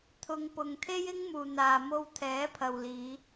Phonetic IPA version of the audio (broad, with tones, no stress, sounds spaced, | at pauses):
t̪ʰ ʊ˨ ŋ p ʊ˨ ŋ t̪ʰ e˥ j ɪ˥ ŋ m uː˨ n̪ aː˨ m o˧ w t̪ʰ ɛː˨˥ pʰ ɐ˨ w l iː˨˧